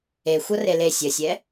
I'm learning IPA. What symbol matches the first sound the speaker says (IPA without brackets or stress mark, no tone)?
e